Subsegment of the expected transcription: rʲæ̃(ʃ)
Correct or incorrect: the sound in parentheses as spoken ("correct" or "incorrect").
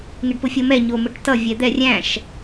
correct